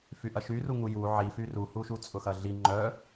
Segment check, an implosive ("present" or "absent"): absent